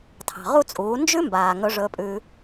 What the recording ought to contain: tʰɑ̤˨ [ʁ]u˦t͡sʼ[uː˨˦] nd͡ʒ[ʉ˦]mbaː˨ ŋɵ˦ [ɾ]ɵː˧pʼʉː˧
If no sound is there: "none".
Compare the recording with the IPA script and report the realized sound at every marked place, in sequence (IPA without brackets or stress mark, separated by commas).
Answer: ʁ, uː˨˦, ʉ˦, ʐ